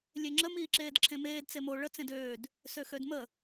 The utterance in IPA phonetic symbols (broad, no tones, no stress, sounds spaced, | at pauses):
lʲ e ŋ͡ǁ ə m iː ǁ eː d ǁʰ ẽ m eː d t͡s e m o ɭ ə t͡s ẽ d øː d | s ø x ø d m ə